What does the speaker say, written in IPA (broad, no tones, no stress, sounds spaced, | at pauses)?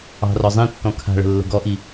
ɑ̤ r ɔ zˤ ĩ tː ɔ̃ kʰ a̤ ɭ ə̤ lː ə̤ ɡ ɔ ʔ i